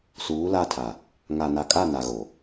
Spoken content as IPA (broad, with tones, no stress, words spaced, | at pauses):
suː˨˦la˦˨tʰa˨ | ŋa˨na˨kʼa˦˨ na˨ɣo˨